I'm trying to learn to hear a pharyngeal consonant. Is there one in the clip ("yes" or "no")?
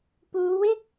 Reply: no